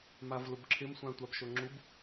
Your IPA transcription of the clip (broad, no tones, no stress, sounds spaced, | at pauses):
m a v l ʊ b ǁʰ ɪ m sʷ ã tʷ a b ʃ o ŋ͡ǁ u b